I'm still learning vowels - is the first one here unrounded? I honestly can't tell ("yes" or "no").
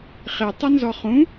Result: yes